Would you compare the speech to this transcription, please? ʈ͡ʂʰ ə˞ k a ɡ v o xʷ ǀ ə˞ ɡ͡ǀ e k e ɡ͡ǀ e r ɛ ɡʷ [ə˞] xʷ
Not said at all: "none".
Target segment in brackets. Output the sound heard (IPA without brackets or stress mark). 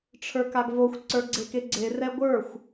ə˞